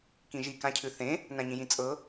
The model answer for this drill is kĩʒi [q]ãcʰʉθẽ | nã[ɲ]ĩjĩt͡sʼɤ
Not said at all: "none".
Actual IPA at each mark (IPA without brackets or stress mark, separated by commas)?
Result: k, ɲ